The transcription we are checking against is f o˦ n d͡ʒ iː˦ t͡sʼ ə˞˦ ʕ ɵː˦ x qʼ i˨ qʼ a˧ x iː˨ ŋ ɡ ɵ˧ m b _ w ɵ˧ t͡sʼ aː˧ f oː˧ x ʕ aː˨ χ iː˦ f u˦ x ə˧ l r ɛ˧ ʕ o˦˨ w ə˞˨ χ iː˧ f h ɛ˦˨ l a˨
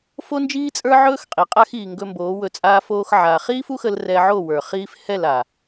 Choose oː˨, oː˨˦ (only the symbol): oː˨˦